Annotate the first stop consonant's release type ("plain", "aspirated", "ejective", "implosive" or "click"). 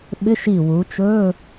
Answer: implosive